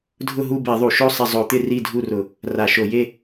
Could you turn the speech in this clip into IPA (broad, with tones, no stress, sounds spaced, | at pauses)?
dʱ ʊ˦˨ ɦ u˦˨ b e˧˩˧ ðˤ u˧˩˧ ʃ o˦˨ sˤ ɪ˦˨ zˤ o˧˩˧ t̪ ɪ˦˨ r i˦˨ dʱ u˦˨ r ʊ˧˩˧ | r a˧˩˧ ʃ o˧˩˧ j e˦˨